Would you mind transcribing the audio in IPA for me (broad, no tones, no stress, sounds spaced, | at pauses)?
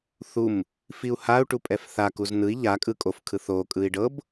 θ u m | f i u̯ h a u̯ ʈ u pʼ ɛ f θ a k u z n ɯ i̯ ʎ a kʼ ɯ kʼ o f kʰ ɯ θ o kʼ ɯ i̯ ɖ ɤ b